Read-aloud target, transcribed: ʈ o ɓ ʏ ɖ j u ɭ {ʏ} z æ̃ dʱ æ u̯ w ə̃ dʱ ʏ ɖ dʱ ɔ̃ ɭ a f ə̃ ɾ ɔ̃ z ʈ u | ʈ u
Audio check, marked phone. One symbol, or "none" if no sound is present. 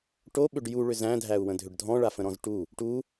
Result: ʏ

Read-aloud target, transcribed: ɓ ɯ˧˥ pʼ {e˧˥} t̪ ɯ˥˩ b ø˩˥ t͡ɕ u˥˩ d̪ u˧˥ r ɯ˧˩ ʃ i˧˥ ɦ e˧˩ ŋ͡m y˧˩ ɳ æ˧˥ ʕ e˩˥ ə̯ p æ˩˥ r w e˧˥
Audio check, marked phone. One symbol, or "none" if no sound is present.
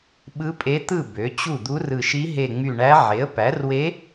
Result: e˧˥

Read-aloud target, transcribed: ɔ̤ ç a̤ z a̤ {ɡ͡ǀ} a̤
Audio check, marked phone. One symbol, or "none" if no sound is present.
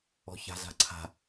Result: ǀʰ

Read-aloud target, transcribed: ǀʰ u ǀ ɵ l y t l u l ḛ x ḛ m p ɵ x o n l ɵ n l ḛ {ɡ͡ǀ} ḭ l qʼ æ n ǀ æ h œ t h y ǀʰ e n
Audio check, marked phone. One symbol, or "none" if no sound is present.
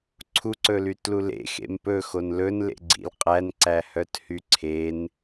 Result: ɡ͡ǀ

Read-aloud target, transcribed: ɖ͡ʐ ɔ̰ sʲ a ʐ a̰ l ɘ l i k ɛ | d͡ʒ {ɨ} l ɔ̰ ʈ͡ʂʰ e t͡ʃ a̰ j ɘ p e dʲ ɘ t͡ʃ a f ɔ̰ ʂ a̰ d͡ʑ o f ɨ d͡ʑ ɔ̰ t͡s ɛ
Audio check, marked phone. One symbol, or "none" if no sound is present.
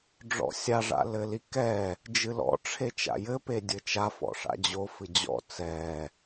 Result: ɨ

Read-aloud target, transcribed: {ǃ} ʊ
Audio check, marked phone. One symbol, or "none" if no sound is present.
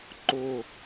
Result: ǃ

